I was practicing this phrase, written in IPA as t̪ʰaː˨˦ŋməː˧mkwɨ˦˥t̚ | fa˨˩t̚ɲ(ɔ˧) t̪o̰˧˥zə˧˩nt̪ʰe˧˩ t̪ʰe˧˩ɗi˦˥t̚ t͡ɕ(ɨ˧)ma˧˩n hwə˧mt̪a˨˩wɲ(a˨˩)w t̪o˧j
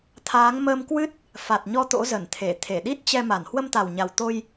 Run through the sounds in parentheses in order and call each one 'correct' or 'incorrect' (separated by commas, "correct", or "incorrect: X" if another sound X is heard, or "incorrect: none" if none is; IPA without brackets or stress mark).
correct, incorrect: ɛ˧, correct